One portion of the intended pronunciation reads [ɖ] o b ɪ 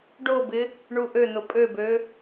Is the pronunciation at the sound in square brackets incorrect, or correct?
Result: correct